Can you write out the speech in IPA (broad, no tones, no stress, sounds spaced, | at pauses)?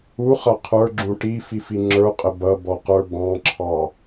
u χ ʌ qʰ ə˞ ɡ͡ǁ ũ ʈ i f i f i ŋ͡ǁ ə˞ qʼ ə b ʌ b ɔ q ə˞ b ɑ̃ ǁʰ ɑ